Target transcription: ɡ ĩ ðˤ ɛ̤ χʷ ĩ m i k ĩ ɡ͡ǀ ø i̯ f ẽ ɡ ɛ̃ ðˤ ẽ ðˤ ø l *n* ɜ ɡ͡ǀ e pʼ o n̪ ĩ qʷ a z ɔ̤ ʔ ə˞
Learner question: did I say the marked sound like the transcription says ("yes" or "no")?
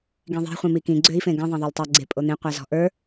no